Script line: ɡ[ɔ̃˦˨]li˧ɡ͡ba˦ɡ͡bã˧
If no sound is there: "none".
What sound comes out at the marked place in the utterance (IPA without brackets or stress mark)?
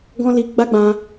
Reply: ɔ̃˦